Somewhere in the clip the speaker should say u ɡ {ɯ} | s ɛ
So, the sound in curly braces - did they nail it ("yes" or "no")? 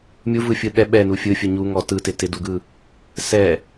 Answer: yes